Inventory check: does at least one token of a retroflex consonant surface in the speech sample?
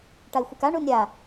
yes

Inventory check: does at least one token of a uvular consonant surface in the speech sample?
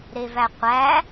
yes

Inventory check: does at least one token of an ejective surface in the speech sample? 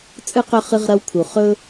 yes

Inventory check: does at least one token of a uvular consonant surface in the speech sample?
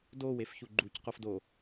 yes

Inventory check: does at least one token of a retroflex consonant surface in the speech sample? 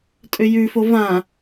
no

